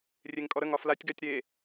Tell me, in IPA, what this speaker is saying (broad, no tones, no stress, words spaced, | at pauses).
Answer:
rʲeŋkʼɔɾəŋɒ flatʲɡatʲ ɾe